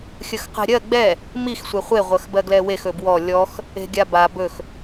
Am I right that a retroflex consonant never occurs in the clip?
yes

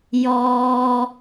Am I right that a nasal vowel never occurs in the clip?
yes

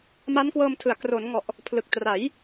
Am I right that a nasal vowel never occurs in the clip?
yes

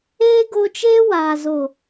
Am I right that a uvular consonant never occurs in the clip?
yes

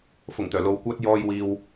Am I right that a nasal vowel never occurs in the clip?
yes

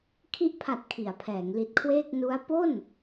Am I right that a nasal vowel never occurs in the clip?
yes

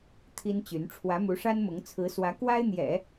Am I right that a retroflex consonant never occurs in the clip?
no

